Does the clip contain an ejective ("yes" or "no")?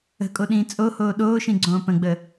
yes